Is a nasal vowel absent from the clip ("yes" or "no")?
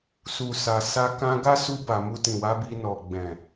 no